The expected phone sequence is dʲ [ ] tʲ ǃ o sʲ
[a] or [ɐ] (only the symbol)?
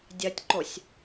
ɐ